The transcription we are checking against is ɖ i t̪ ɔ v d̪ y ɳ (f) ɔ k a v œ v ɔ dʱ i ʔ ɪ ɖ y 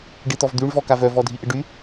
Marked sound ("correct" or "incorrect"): incorrect